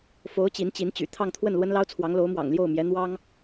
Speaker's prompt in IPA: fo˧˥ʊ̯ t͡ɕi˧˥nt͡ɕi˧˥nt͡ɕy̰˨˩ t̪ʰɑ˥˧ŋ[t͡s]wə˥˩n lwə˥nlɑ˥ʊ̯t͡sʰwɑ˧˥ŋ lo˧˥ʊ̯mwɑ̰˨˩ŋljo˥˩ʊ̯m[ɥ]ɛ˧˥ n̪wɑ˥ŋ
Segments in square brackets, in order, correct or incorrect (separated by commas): incorrect, incorrect